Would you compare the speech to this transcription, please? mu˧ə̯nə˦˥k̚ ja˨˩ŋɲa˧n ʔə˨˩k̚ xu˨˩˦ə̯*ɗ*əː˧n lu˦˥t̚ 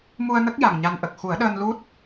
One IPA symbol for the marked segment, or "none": ɗ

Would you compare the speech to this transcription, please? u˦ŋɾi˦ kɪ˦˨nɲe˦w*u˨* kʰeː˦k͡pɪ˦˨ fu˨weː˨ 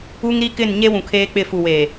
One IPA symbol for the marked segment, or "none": ũ˨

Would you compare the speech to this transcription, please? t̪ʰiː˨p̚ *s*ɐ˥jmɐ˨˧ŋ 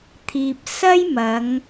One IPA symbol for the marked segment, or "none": s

